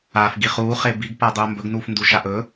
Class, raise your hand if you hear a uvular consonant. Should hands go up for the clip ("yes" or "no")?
yes